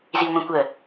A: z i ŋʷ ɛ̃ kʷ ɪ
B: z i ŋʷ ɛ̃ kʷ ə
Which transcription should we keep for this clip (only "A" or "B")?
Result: B